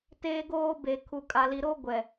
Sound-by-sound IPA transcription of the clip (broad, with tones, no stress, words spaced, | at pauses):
teː˦ɡoː˦ be˨ kʰu˨kʼa˨li˨ɾo˦ ɡʷɛ˨